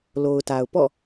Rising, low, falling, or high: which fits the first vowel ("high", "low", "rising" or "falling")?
low